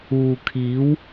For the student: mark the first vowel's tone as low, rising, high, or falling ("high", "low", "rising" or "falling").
low